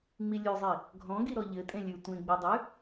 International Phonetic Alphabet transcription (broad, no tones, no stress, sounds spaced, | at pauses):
ŋ͡m i lʲ ʉ zˤ i | ɡʱ ɔ̃ ɡ i ɾ ɔ ʎ ɘ tʼ ẽ lʲ ʉ tʷ ẽ ɡ͡b i dˤ ʉ